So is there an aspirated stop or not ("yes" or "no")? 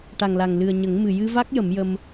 no